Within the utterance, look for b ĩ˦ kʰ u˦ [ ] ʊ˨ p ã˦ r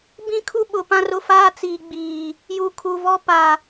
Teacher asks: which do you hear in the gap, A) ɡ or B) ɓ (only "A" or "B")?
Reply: B